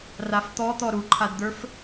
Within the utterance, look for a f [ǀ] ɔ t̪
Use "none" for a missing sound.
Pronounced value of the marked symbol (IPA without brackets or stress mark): t̪